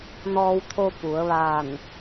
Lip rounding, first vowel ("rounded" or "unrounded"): rounded